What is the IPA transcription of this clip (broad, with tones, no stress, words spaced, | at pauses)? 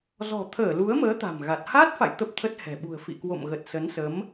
zɔ̤˨˩t̪ʰəː˧˩lu˨˦ə̯məː˨˦ t̪a̤˨˩mɣa˨˩t̚ haː˦˥t̚fa̰˧˨j t̪ə˦˥p̚t̪ʰə˦˥t̚hɛ̤˨˩ ɓṳ˨˩ə̯fḭ˧˨ kwo̰˧˨mɣə˨˩t̚sə˨˦nsə˨˦m